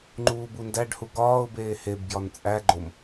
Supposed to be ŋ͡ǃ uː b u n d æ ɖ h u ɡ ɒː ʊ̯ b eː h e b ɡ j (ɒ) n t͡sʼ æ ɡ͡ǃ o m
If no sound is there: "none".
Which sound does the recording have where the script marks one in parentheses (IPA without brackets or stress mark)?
ɒ